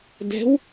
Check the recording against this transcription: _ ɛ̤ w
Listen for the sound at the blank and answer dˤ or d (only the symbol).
d